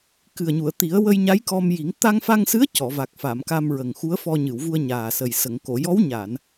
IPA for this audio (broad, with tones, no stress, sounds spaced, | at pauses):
k ɨ˨˩ ə̯ ɲ u˨˩˨ ə̯ t̪ i˨˩˦ ə̯ w ə˧ j ɲ a˧˥ j k ɔ˧ m j i˨˩˦ ŋ t̪ a˧ ŋ f a˧ ŋ s ɨ˧˥ ə̯ c ɔ˨˩˨ v a˨˩ k̚ f a˨˩˨ m k a˧ m ɹ ə˨˩ ŋ x u˧˥ ə̯ f ɔ˧ ɲ ɨ˨˩˨ w v u˧ ə̯ ɲ aː˨˩ s ə˨˩ j s ə˨˩˨ ŋ k o˨˩˨ j ɔ˧˥ w ɲ a˨˩˨ n